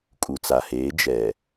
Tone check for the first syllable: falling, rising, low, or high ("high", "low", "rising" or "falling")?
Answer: low